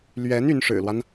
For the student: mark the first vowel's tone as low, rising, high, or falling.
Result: rising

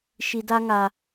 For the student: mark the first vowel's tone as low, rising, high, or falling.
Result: low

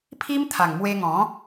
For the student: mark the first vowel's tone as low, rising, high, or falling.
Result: high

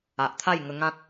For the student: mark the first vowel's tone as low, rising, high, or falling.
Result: low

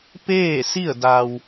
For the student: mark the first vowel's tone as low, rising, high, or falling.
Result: falling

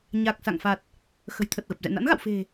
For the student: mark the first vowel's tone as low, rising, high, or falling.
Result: low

